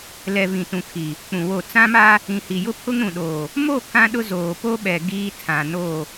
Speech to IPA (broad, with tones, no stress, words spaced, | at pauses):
lɛ˨ vĩ˨tũ˨ kʰi˨ | k͡pũ˨wo˦˨ t͡sã˦ma˦ | ĩ˨hi˨jʊ˦pʰʊ˦ŋ ɾũ˨ɗoː˨ | mo˦˨ kã˦ɗʊ˦ zoː˨po˦ɓɛ˨ ɡiː˦ tʰã˨no˦˨